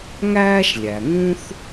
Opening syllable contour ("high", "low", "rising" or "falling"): high